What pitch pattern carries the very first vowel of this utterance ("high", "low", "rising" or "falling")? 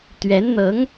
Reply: rising